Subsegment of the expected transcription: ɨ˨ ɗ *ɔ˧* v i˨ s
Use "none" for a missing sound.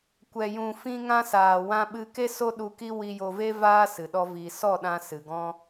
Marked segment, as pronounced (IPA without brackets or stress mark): ɔ˧